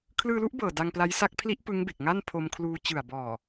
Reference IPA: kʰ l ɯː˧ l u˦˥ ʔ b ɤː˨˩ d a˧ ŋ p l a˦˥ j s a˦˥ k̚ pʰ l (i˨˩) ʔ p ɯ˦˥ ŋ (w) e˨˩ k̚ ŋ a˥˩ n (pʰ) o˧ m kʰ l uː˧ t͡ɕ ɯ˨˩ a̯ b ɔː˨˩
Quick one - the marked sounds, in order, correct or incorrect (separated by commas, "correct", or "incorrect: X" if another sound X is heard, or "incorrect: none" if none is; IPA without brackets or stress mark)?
incorrect: i˦˥, incorrect: b, correct